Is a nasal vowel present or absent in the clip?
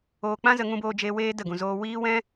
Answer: present